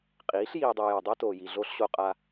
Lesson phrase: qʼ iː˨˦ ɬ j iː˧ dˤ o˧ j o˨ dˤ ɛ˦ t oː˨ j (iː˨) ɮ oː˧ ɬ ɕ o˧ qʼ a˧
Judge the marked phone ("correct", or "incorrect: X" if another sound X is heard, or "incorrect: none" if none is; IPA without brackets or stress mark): incorrect: i˨